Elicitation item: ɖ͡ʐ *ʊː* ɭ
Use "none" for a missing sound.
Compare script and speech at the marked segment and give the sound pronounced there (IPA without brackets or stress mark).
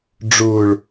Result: ʊː